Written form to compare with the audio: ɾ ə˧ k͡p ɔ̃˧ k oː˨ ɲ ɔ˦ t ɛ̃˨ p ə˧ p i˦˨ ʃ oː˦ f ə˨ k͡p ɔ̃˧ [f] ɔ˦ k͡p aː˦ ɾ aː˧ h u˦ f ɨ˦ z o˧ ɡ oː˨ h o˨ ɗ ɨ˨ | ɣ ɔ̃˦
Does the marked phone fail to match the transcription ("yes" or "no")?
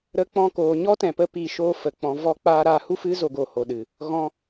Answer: yes